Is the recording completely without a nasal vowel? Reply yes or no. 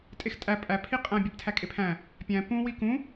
no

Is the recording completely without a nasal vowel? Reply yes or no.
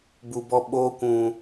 no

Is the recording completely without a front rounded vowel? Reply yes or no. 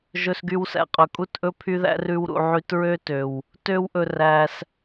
no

